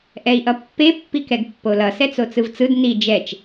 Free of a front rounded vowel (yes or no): yes